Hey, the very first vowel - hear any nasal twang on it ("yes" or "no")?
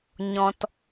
yes